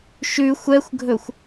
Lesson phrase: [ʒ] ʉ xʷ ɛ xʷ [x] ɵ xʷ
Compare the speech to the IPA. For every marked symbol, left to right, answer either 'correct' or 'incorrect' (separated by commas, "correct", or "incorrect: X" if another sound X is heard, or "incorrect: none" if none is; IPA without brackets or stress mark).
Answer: incorrect: ʃ, incorrect: ɡʱ